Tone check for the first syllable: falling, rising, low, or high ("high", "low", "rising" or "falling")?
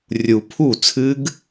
low